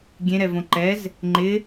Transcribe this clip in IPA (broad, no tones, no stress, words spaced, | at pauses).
ɡʲẽɾɛvõ ǃɛz | ŋ͡ǃɪ